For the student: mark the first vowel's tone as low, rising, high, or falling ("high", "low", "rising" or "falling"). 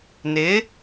rising